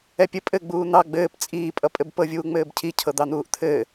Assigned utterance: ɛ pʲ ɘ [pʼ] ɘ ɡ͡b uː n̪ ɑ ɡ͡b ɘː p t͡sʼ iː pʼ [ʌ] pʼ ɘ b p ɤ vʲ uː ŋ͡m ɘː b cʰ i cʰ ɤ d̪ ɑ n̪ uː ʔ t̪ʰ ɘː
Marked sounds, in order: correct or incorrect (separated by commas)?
correct, correct